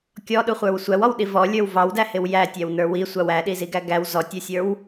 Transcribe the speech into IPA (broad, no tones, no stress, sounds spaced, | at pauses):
kʲ ɔ ɗ u χʷ ə˞ w sʷ æ w ɔ w ɗ i v ɔ lʲ ə˞ w v ɑ w d æ h ɪ w j æ tʲ æ w n ə˞ w i sʷ ɑ w æ ɗ i z i ɡ æ ɡ æ w z ɔ tʲ ə˞ sʲ ə˞ w